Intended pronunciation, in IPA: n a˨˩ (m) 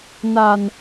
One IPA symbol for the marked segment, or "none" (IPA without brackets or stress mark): n